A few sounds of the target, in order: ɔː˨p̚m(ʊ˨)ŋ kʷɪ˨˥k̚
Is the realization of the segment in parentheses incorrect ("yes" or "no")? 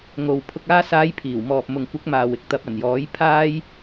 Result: no